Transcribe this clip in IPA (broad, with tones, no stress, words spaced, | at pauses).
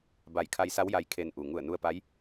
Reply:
ba˧˩jkʰa˧jsa˧˥w ja˧˥jkʰe˧n ʔu˩ ŋu˧˩ə̯nu˧ə̯pa˧˥j